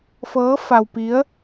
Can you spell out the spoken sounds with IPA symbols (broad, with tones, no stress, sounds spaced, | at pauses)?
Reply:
f ɤː˧˥ f a˧ w p i˧˥ ə̯